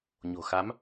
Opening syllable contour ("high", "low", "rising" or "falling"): low